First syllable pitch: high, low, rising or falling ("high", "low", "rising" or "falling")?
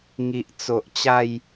low